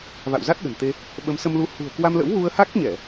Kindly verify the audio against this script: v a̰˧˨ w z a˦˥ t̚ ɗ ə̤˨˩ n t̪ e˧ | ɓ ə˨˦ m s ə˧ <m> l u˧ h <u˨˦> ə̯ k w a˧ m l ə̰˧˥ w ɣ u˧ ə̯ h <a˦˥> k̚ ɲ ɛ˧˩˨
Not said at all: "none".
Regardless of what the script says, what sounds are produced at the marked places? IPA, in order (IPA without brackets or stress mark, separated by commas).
m, ṳ˨˩, a˦˥